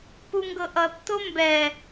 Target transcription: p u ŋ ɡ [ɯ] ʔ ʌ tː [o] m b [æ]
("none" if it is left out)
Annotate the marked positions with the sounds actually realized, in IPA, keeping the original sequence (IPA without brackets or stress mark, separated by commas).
ɤ, o, ɛ